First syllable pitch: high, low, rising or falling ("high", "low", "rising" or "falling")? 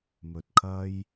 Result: low